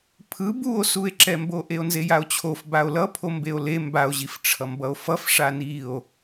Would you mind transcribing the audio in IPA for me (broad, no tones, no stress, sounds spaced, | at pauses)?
pʰ ɯ b u o̯ s u e̯ ǁ ɛ m b o ʔ e o̯ n z e j a o̯ t͡ɕʰ o f b a o̯ l ʌ pʰ o m b e o̯ l e m b a o̯ ʑ i f ʈ͡ʂʰ ʌ m b ʌ o̯ f ʌ f ʂ a n i o̯